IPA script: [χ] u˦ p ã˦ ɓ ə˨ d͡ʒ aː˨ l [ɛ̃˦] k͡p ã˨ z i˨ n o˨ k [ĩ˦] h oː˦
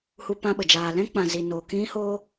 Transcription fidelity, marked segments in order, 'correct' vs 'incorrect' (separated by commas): incorrect, correct, correct